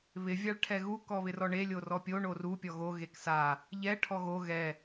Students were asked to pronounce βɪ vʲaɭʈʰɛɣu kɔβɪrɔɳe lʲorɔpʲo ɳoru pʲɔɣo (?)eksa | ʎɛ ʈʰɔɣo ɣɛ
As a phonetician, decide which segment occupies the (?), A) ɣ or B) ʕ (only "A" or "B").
A